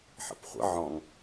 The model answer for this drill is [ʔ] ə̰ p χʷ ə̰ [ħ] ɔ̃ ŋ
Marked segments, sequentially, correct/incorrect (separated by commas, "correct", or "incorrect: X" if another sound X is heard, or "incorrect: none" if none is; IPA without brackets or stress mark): incorrect: ħ, incorrect: ʕ